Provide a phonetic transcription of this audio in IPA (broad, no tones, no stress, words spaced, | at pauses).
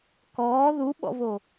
kɔː ðuɓɔ̰vo